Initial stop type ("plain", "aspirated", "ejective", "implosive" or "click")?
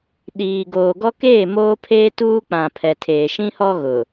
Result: implosive